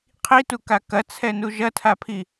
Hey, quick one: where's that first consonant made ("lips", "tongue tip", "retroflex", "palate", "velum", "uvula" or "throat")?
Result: uvula